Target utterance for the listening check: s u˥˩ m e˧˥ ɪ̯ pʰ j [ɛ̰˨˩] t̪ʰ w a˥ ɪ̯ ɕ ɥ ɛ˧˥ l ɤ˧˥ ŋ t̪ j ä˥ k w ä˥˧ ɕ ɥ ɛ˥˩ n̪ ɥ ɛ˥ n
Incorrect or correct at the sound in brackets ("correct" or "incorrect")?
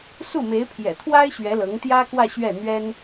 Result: correct